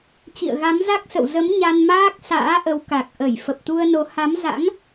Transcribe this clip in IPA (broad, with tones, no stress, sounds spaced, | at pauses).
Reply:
t͡ɕ ḭ˧˨ ə̯ ɣ a˨˦ m z a˦˥ k̚ s ə̰˧˨ w z ə˨˦ m ɲ a˧ n m aː˦˥ k̚ s a̰ː˧˥ ʔ ə˨˦ w k a˨˩ k̚ ʔ ə˧˩ j f ə˨˩ p̚ t̪ u˧ ə̯ n o˨˦ h a˨˦ m z a̰˧˥ ŋ